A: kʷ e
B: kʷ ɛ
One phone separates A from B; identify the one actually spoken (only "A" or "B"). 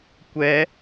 B